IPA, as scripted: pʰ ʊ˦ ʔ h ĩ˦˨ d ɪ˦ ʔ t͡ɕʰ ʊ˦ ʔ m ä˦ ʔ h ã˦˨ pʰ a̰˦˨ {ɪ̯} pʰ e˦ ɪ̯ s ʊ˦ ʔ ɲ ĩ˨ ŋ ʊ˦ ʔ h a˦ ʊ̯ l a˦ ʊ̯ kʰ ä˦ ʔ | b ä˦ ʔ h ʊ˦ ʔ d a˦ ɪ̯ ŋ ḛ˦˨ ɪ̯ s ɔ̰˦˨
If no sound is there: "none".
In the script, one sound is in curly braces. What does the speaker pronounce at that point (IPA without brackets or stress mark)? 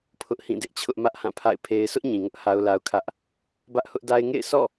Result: ɪ̯